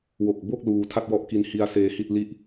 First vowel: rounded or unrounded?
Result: rounded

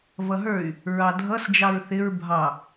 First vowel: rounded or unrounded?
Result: unrounded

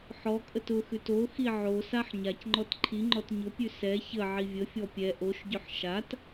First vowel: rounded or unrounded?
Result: rounded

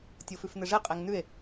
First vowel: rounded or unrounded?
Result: rounded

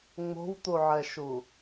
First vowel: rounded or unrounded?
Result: rounded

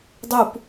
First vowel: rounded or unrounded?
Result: rounded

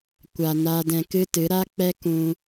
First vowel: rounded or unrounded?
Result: unrounded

